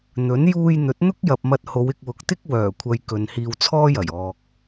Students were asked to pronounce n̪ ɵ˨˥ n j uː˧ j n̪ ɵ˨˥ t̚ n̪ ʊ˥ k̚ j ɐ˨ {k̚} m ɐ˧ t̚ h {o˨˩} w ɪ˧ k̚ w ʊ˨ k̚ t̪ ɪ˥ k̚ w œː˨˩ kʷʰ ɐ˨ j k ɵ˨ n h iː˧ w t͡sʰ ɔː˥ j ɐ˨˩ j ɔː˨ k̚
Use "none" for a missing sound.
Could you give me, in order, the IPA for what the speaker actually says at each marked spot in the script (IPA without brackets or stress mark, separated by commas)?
p̚, o˨˧